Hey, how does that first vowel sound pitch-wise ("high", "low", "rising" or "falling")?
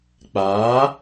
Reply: rising